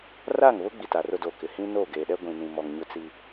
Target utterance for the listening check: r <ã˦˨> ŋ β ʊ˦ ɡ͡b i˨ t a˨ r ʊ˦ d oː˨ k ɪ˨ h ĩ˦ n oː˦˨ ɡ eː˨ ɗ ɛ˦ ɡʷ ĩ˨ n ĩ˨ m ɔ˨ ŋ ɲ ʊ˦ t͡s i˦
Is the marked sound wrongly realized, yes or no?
yes